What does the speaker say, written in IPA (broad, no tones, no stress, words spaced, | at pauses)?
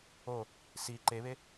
o | si ǃeβe